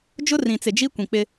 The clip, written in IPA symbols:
d͡ʒʊ˦rĩ˨t͡sɪ˨ d͡ʒi˦kʷĩ˨k͡pɪ˦

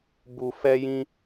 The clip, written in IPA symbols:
bu˨ fɛ˧jĩ˧

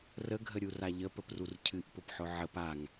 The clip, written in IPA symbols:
rəɡʱəɾʲura ʎəpəprur cʰɨʔpʊpħʊ ʕəp aŋ

